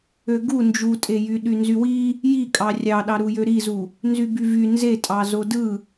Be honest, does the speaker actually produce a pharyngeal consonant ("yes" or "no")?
no